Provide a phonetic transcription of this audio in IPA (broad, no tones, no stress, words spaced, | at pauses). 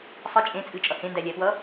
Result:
sˤə t͡ʃʼẽ t͡sʼɨt͡ʃʼʌ hẽndælʲæpwʌ